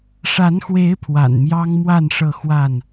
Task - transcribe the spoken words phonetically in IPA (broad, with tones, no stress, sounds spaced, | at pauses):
ʂ a˨˦ n x w e˨˦ ɪ̯ pʰ w a̰˨˩ n m j ɑ˦ ŋ m w a˥˨ n ʂ ɤ˥˨ x w a˥˨ n